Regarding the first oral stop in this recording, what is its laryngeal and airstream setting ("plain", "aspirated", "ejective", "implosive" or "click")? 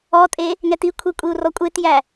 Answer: ejective